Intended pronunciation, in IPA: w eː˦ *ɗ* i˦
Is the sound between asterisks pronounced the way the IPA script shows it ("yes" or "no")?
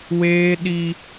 yes